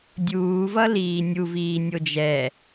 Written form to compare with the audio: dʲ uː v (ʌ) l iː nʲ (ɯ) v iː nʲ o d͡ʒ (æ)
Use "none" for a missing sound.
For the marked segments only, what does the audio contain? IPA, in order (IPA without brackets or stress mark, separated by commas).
ʌ, u, ɛ